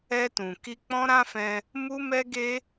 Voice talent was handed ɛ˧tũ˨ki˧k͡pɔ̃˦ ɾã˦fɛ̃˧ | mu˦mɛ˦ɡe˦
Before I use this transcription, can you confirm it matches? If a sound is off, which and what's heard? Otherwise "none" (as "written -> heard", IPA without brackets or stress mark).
none